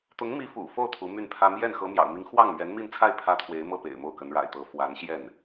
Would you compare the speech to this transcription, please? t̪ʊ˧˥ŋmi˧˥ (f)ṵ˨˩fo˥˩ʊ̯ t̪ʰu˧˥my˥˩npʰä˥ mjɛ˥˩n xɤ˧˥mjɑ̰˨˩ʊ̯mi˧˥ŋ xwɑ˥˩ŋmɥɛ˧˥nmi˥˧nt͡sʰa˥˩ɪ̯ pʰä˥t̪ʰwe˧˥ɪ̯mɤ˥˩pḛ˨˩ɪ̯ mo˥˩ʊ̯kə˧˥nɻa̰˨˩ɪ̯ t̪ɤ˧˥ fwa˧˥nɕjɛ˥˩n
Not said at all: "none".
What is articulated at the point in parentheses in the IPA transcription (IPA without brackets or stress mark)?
f